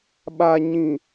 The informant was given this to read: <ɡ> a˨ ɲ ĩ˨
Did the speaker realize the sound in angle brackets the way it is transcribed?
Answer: no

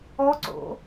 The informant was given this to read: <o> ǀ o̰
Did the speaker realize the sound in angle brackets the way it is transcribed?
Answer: no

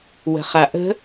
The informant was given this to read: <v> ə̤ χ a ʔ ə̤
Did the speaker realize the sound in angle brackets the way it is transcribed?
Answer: no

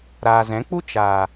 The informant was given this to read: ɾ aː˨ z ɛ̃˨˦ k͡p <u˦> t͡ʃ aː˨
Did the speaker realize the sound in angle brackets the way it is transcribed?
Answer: yes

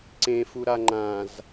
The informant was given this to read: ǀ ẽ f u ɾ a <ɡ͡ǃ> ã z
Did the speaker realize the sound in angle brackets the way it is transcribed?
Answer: no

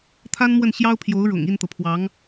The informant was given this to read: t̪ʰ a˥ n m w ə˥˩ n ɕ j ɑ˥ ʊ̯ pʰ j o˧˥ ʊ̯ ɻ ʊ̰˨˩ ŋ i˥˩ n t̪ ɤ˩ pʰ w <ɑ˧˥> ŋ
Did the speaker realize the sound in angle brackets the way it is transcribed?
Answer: yes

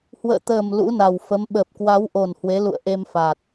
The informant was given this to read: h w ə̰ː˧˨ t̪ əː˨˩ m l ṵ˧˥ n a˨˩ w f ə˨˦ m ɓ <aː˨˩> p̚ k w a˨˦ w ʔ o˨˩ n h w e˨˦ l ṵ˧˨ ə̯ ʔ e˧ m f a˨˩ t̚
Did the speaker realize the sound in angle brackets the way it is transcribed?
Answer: no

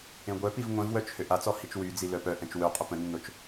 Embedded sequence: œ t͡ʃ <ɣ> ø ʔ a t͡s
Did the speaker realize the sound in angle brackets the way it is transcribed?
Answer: no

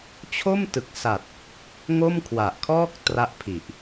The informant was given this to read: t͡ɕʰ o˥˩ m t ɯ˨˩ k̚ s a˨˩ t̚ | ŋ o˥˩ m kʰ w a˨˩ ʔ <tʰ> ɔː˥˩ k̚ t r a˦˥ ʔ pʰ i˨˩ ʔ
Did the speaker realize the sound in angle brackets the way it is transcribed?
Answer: no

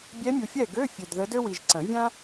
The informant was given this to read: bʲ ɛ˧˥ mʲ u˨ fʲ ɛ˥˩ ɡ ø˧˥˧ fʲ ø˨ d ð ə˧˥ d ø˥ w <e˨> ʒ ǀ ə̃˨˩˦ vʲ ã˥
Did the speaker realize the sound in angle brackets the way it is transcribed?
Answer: no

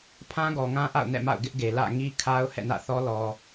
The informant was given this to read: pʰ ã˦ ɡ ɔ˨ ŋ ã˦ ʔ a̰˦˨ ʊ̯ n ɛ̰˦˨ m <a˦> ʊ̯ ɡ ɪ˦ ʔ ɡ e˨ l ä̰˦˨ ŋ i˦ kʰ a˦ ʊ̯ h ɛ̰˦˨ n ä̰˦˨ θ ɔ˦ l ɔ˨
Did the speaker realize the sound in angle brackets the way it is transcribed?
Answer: no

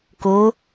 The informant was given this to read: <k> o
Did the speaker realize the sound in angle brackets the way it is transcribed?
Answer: yes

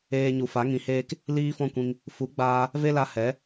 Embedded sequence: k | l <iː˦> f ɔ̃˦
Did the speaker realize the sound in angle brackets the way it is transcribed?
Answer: yes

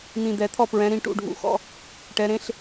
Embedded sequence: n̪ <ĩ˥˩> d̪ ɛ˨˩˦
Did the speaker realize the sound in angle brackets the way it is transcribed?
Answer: no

